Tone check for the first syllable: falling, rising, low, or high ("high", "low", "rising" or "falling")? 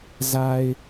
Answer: low